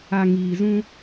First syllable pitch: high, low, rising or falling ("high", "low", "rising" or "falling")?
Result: low